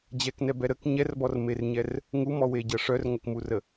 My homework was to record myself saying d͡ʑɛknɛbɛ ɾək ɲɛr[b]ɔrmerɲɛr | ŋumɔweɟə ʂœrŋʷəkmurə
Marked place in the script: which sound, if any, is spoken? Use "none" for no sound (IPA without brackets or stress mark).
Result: b